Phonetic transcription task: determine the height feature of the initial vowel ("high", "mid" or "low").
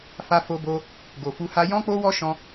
low